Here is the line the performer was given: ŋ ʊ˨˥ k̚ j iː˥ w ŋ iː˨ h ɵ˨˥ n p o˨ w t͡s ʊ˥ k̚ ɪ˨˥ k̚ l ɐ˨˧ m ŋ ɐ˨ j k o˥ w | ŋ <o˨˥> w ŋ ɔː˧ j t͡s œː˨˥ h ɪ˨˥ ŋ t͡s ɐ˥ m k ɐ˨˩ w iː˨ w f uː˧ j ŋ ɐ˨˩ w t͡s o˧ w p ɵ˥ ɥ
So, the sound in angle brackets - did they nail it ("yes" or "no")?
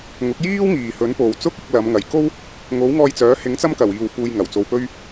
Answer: yes